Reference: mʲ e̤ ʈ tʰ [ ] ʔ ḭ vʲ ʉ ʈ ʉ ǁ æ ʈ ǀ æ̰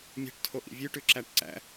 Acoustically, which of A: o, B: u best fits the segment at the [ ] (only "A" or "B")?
A